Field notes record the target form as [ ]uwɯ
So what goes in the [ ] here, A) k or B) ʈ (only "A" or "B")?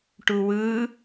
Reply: B